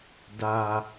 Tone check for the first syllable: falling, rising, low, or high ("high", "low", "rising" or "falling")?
low